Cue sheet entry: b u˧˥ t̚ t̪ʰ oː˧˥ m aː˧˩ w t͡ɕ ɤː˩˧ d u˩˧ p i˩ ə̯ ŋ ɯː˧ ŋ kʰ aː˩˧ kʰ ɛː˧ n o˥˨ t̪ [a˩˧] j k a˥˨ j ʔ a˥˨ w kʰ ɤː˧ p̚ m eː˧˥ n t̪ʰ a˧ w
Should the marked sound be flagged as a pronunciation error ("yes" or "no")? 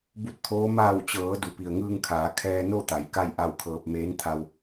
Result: no